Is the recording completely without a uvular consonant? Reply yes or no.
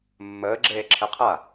no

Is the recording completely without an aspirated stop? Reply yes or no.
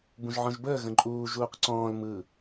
yes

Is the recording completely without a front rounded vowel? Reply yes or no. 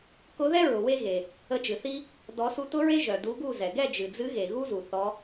no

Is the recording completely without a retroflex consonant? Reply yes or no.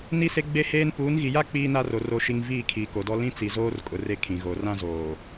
yes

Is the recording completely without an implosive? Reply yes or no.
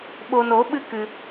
no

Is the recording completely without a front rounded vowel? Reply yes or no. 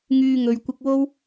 no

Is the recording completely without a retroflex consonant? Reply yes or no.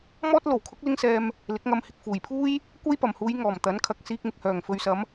yes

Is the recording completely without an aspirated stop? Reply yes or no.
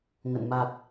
yes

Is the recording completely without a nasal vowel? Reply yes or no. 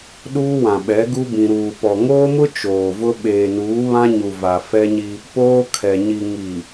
no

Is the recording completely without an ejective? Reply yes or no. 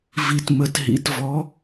yes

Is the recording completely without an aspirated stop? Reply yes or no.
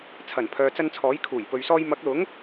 no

